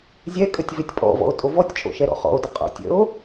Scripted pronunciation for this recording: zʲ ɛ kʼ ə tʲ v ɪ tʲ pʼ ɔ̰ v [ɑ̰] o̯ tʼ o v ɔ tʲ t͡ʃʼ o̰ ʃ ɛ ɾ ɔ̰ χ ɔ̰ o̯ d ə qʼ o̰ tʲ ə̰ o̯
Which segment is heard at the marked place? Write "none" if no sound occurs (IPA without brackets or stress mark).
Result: ɔ̰